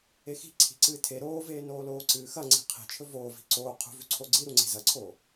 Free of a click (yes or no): no